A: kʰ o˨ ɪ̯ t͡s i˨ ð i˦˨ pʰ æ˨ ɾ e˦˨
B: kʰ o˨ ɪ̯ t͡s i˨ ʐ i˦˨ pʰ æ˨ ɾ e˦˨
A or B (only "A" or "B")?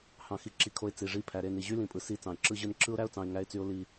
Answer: B